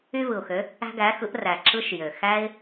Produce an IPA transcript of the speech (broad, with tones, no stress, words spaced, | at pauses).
y˧vɯ˩ʊ̯xø˩˧ | æ̤˧ɡæ˩˧xɯ˩˧ʔræ˩ ǁɯ˧ʃjø˩ xæ˧ɪ̯